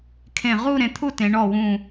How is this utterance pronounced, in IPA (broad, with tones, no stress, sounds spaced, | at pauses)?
kʰ ẽ˧˩ ʁ u˥˧ ɾ ẽ˩˧ t̪ʰ u˥˧ t ẽ˩˧ ɳ ɔ˧˩ w ũ˧˩